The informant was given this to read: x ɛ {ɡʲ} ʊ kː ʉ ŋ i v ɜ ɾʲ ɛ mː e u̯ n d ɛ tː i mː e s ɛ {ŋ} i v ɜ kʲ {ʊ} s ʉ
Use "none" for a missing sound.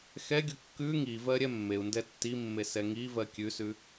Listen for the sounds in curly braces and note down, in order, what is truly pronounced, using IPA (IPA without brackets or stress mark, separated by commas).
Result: ɡʲ, ŋ, ʉ